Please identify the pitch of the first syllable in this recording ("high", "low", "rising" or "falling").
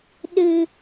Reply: low